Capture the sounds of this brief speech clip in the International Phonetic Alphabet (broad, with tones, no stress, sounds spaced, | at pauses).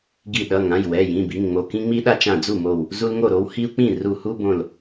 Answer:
ɡ i˧˩ ɗ ʌ˩˧˩ ŋ ã˩˧˩ j w ɛ˩˧˩ j ĩ˩˧˩ b i˩˧˩ ŋ ŋ͡m o˧˩ k ĩ˦ ŋ͡m i˦ ɗ a˦ t͡ʃ ã˧˩ d͡z u˥˩ m o˧˩ w | z u˦ l ŋ o˥˩ ɾ o˦ w h i˦ u̯ k͡p ĩ˥˩ r u˧˩ h u˦ b õ˧˩ l